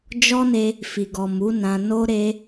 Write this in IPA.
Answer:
d͡ʒ ɔ˦ n e˧ | f i˨ ɡ ɔ˨ m u˨˦ n ã˧ n o˧ ɾ e˧

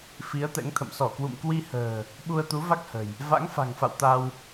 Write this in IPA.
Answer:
f i˨˦ ə̯ t̪ ɛ̰˧˥ ŋ t̪ʰ ə̰˧˨ m s ɔ˧˩ k w ṵ˧˨ m k w i˧ h ə̤ː˨˩ | ɓ u˧ ə̯ t̪ u˨˦ v a˦˥ k̚ h ə̤˨˩ j | v a̰˧˥ ŋ f a̤˨˩ ŋ f a̰˧˨ w t̪ a˧ w

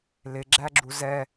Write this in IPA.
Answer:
l ɪ ɡ͡ǁ æ ɡ͡ǁ u z ɛ

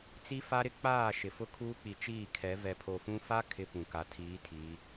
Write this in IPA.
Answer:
t͡s i˦ f a˦ ɾ ɪ˦ k͡p aː˦˨ ʃ ɪ˨ f ʊ˦ kʰ uː˦ k͡p i˨ t͡ʃ iː˦˨ kʰ ɛ˨˦ v ɛ˨ pʰ o˨ f ũ˦ f a˦ kʰ ɪ˦ p ũ˨ k a˨ tʰ iː˨˦ tʰ iː˨˦

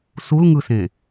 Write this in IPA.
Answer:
s u l ŋ ɯ s ẽ

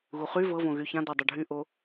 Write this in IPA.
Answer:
ɣ u χ y v ɤ v õ ɣ y ç ã d ɤ dˤ o ɖʱ y ʔ o

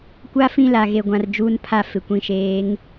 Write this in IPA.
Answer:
kʷ a˦ f ĩ˦ l a˨ ɣ e˨ ɡʷ ã˨ r d͡ʒ uː˦ n pʰ a˦˨ f ɪ˨ kʷ ĩ˨ ʃ eː˨˦ ŋ

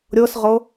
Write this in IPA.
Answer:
ɾʲ ɤ s ʁ ɤ

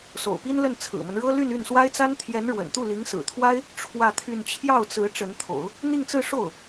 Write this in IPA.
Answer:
s o̰˨˩ ʊ̯ p i˥ n l ə˥˩ n t͡sʰ ɹ̩˨˩ m ə˦ n ɻ ɤ˥ l y˥˧ n y˥˩ n s w a˥ ɪ̯ t͡s a˥ n t̪ʰ j ɛ˧˥ n ɻ w ə̰˨˩ n t̪ u˥˩ l i˧˥ ŋ s ɹ̩˨˩ t̪ʰ w a˥ ɪ̯ | ʈ͡ʂʰ w ä˥˧ t̪ʰ y˥˧ n t͡ɕʰ j ɑ˥˩ ʊ̯ t͡s ɹ̩˧˥ ʈ͡ʂ ə˧˥ n t̪ʰ o̰˨˩˦ ʊ̯ | n̪ i˥˧ ŋ t͡s ɹ̩˥˧ ʂ o˥˩ ʊ̯

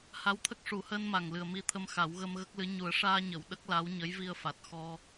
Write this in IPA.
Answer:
h a˧˥ w t̪ʰ ə˦˥ k̚ ʂ u˨˩˦ h əː˧ n m a˨˩ ŋ l ɨ˨˩ ə̯ m i˧ t̪ʰ ə˧ m x a˨˩˦ w ɣ ə˧ m ɣ ə˦˥ k̚ l ɨ˧˥ ɲ u˨˩˦ ə̯ ʂ aː˧ ɲ ə˨˩˨ w ɗ ə˦˥ k̚ l a˧˥ w ɲ ə˧˥ j v i˧ ə̯ f a˨˩ t̚ x ɔ˧

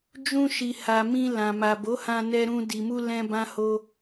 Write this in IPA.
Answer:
d͡ʒ ũ˧ ʃ i˨ h a˨ m ĩ˧ l ã˨ m a˨ b o˨˦ h ã˧ n ɛ˧ ɾ ũ˧ d i˨ m u˧ l ɛ̃˧ b ã˦ h o˦

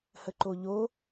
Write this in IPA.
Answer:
h ə ǃ o ʎ o

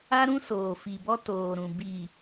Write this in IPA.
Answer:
a˦ ɾ ũ˦ s oː˨ f i˨ b ɔ˦ t oː˨ ɾ ũ˨ b i˨

